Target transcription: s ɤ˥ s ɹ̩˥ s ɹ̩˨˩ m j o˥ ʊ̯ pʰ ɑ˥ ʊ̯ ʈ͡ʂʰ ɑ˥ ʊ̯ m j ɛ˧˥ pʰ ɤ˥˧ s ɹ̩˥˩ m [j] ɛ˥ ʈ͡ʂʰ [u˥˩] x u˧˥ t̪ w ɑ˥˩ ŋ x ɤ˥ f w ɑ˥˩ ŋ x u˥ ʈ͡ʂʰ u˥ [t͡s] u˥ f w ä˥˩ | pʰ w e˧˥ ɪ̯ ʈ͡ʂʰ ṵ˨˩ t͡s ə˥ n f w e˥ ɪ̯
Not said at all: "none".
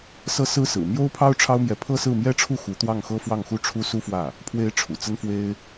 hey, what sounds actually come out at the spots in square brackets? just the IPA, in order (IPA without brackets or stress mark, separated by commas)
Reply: j, u˥˩, s